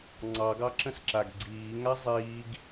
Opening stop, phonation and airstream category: click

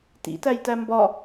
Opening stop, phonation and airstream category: plain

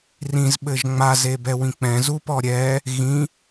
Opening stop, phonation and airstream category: implosive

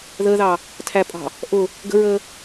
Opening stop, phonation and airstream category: aspirated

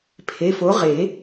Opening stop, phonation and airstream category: aspirated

